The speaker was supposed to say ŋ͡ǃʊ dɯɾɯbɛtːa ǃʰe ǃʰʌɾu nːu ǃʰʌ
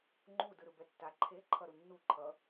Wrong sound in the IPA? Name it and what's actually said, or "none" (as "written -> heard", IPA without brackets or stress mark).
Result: ʊ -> u